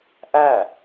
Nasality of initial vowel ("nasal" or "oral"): oral